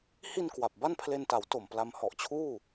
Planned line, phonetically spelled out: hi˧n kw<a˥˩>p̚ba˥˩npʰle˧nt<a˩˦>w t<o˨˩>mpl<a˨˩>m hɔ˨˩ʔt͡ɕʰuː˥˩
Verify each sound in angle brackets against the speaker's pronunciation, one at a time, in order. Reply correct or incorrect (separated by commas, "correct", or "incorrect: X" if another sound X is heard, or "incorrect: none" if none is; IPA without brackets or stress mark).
incorrect: a˨˩, correct, correct, incorrect: a˧